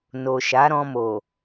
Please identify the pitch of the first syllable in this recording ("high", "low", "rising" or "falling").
low